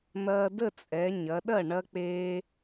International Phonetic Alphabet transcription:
n̪ ɐː˧ d ə˥˩ t͡sʼ ɛ˩˧ ɲ ɐ˩˧ ɗ ɐ˥˩ ɳ ɐ˧ k͡p eː˧

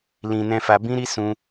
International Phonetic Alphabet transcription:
l ĩ˧ n ɛ̃˧ f a˧ b ĩ˦ ɾ i˦ s ũ˦

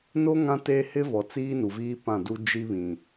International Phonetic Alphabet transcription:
n o˦ ŋ ã˦ t e˦ h ɪ˦ v ɔ˨ t͡s iː˦ n u˨ v iː˦ p ã˦˨ d u˦ d͡ʒ i˦ β ĩ˨

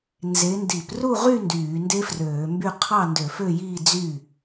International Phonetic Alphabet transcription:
n z e˨˦ n d i˧˩˧ p r u˥˨ ʁ y˥˨ n d yː˧˩˧ n d e˦˥ f r øː˧˩˧ m b y˥˨ qʰ ɑ˥˨ n d ø˧˩˧ f ø˥˨ j iː˥˨ d͡z y˥˨

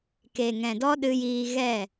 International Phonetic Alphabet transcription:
k e˨ ŋ ɛ̃˨ d ɔ˦ ɗ ɨ˧ j iː˧ ɣ ɛ˦˨

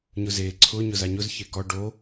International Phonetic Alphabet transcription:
ɲ ʊ z e ǀʰ ʊ ɲ ʊ z a ɲ ʊ z ç e k ɔ ɖ o

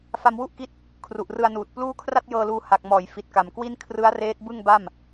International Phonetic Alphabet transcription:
f a˧ m w u˥˩ ʔ k i˦˥ t̚ | kʰ r u˨˩ ʔ r ɯ˧ a̯ n uː˨˩ t̚ p l uː˥˩ kʰ r a˥˩ t̚ j ɤː˧ l uː˧ h a˨˩ k̚ m ɔː˩˦ j f i˨˩ t̚ k a˨˩ m k w i˥˩ n kʰ r ɯ˦˥ a̯ r eː˦˥ t̚ b ɯ˥˩ ŋ b a˥˩ m

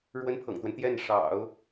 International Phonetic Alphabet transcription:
ɻ w ə˥ n pʰ ɤ̰˨˩ ŋ t̪ w ə˦ n t̪ j ɛ˥˩ n ʂ ɑ̰˨˩˦ ʊ̯

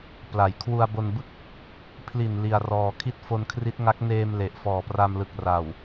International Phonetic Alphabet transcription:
p l a˩˦ j kʰ w u˧ a̯ b o˧ n b ɯ˥˩ k̚ | pʰ l i˨˩ n l i˧ a̯ r ɔː˧ kʰ i˥˩ t̚ f o˧ n kʰ r i˦˥ t̚ ŋ a˦˥ k̚ n eː˧ m l e˨˩ ʔ f ɔː˨˩ p r a˧ m l ɯ˨˩ k̚ r a˨˩ w

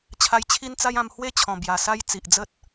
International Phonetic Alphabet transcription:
t͡ɕʰ a˧ j t͡ɕʰ i˦ n t͡s a˦ j ã˧ m h w e˦ t͡ɕʰ ɔ̃˨˩ b j a˨˩ s a˦ j t͡s i˨ ʔ d͡z ə˦ t̚

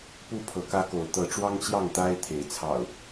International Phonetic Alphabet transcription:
p u˥˨ pʰ ɤ˨˦ k ä˦ k o˨˦ ʊ̯ t̪ ɤ˨˦ ʈ͡ʂ w ɑ˦ ŋ t͡ɕ j ɑ˥˨ ŋ t̪ a˦ ɪ̯ t̪ʰ e˨˦ ɪ̯ t͡sʰ ɑ̰˨˩ ʊ̯

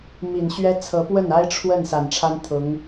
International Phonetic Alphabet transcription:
m i˨˩ n ɕ ɥ ɛ˥ t͡sʰ ɤ˧˥ p w ə˥˩ n a˥ ɪ̯ ʈ͡ʂʰ w ə˥˩ n s a˨˩ n ʈ͡ʂʰ a˥ n t̪ʰ ʊ˧˥ ŋ

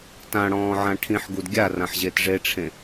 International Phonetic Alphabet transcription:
t ã ɽ ɔ̃ː ʕ ã ʈʰ ĩ ħ ɡ u d ɡʲ a r ã ħ ʑ e t ʐ e ʈ͡ʂʰ ẽ

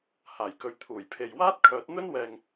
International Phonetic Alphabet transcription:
h aː˨˩ j k ɵ˨ ɥ t̪ʰ uː˨˩ j pʰ e˨ j w aː˥ t̚ kʰ œː˨˥ t̚ n̪ ɵ˥ n w ɛː˨ ŋ

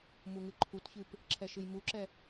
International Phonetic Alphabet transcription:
m u ŋ ɨ ǃʰ u t ç ɨ p | ǁʰ ɛ ʃ ɨ j m u ǁ ɛ

